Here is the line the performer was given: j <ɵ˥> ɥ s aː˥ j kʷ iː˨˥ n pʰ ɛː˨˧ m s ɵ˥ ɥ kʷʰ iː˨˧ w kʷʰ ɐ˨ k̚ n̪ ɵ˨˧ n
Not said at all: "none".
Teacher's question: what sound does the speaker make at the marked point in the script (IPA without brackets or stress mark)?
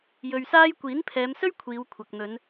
ɵ˧